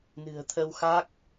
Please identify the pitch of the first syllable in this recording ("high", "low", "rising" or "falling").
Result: low